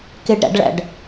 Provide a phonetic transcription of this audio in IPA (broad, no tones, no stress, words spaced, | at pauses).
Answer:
keɖɾæ̰ɖɭæ̰ɖ